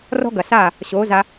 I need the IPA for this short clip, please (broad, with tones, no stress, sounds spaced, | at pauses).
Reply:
r ɔ̤˦ ɡ ɐ˨ s aː˦˨ | ɕ oː˨˦ z a˧